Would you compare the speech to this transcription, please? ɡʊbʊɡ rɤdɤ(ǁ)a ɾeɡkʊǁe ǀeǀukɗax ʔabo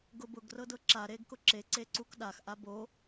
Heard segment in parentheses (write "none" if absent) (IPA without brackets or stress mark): ǁ